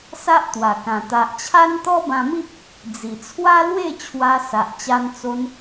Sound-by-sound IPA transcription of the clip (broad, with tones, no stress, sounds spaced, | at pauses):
s a˦ ʔ t̪ w a˨˩ k ã˨˩ t̪ a˨ ʔ t͡ɕʰ a˦ n t̪ ɔ˦ b ã˧ m i˦ p̚ | d͡z i˨˩ t͡sʰ w a˦ l w e˥˧ t͡ɕʰ w a˧ s a˨ ʔ t͡ɕ a˧ n t͡s o˧ n